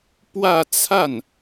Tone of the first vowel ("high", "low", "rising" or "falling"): falling